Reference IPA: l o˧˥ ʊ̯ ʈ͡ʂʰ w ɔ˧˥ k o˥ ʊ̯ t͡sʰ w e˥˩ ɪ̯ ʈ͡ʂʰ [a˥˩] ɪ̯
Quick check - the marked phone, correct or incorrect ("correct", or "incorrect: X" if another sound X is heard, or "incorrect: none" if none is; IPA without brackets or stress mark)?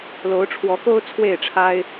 incorrect: a˥